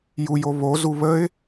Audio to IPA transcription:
j u j o β o z u β ə ɪ̯

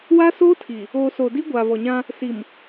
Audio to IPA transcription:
w a˦ s oː˦ tʰ i˨ | oː˨ s oː˨ d i˦ ɡʷ aː˨ v ɔ˨ ɲ ã˦ | s i˨ m

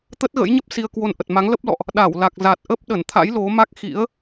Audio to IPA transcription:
t̪ ə˦˥ t̚ ɣ ə̰˧˥ j ɲ ə˦˥ p̚ s i˧ ə̯ k w o˧ n ʔ ə˨˩ t̚ m a˨˦ ŋ l ə˦˥ p̚ l ɔ̰˧˨ ʔ | ɗ a˧˩ w l a˨˩ k̚ z a˨˩ t̚ ʔ ə˦˥ p̚ ɗ ə˧˩ n t̪ʰ a̰˧˥ j l o˨˦ m a˦˥ k̚ x ḭ˧˥ ə̯

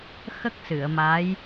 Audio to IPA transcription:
x ə˦˥ k̚ s ɨ˨˩˨ ə̯ m a˧˥ j

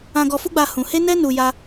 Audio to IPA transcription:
ã˧ ɡ ɔ˧ f u˦ ɡ͡b a˧ h ũ˧ h e˦ n ɛ˦ n u˧ j a˦

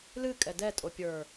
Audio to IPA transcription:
l ɨ kʼ ɛ d ɛ tʼ o pʲ ə˞

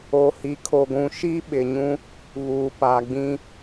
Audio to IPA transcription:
o˨ h i˨ kʰ o˨ ɡʷ ũ˨ ʃ i˦ ɓ ɪ˨ ɲ ũ˦ | β uː˨ p a˨ ɡ͡b ĩ˦

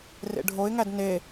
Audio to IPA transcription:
r ḛ ɖʱ o ɪ̯ ŋ æ d n e

